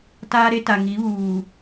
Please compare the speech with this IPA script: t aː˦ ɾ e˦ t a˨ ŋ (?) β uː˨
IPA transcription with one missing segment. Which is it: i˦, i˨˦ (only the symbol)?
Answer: i˨˦